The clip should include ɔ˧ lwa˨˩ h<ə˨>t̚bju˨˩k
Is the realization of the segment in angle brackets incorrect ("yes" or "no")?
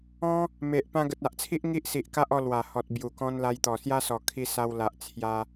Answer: yes